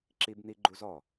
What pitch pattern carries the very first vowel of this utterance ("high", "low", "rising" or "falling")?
high